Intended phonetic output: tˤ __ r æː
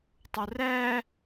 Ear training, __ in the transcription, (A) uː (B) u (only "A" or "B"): B